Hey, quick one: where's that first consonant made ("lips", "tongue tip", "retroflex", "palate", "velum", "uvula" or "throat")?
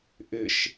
throat